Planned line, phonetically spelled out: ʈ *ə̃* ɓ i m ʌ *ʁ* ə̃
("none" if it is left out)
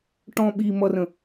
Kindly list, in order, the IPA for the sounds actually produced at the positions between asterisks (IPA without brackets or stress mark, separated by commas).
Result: ɔ̃, r